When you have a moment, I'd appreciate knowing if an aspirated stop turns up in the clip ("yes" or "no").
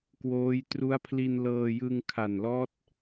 yes